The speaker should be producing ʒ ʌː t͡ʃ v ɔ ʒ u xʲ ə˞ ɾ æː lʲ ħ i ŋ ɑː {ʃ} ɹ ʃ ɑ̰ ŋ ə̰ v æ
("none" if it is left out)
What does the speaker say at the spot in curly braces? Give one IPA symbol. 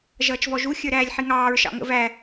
none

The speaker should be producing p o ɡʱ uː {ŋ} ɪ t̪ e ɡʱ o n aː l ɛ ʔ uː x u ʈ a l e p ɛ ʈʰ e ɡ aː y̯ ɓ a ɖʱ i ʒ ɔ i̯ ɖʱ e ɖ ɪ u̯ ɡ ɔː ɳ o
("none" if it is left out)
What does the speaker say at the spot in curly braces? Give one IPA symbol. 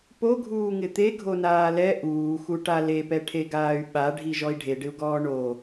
ŋ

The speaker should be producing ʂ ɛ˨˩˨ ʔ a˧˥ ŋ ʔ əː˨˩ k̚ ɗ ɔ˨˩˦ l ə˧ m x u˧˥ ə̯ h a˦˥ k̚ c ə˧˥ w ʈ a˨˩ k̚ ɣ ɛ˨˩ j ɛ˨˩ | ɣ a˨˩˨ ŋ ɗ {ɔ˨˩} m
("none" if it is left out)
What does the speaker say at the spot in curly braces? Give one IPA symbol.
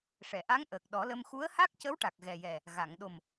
o˨˩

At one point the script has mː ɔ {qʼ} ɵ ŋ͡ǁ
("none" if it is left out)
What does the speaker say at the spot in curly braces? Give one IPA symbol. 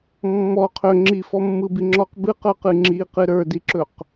qʰ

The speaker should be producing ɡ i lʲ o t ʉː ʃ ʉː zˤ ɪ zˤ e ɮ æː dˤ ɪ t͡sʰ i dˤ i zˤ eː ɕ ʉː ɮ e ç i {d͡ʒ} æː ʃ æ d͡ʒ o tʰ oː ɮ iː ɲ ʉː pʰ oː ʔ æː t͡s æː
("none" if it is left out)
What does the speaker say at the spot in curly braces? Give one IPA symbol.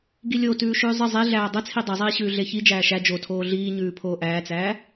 d͡ʒ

